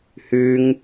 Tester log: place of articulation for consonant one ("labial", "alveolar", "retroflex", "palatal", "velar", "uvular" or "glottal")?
glottal